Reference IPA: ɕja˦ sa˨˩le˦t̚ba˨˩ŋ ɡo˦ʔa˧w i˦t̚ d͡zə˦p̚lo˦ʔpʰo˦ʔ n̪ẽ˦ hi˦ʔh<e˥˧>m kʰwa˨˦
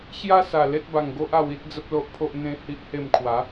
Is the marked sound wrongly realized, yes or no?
no